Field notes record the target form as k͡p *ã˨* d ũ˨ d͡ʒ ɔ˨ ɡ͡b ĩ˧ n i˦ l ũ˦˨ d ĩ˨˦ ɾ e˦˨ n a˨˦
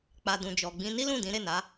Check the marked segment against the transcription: incorrect: a˨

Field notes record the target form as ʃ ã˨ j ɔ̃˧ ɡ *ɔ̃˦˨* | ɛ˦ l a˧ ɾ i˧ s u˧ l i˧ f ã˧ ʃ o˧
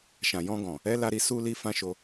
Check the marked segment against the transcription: incorrect: ɔ̃˨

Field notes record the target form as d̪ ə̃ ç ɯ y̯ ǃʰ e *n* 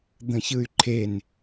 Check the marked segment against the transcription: correct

